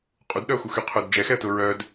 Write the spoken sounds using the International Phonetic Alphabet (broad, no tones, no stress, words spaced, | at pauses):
qʼudɗœʊ̯xuxy qʰʊd d͡ʒɛxɛə̯tʊ ɹœd